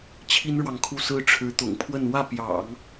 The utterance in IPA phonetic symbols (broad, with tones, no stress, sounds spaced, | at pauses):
t͡ɕʰ i˥ n ɻ w ɑ˨ ŋ kʰ u˥˩ s ɹ̩˥ ʈ͡ʂʰ ɻ̩˧˥ t̪ ʊ̰˨˩ ŋ pʰ w ə˥˧ n w ä˥˩ p j ɑ̰˨˩˦ ŋ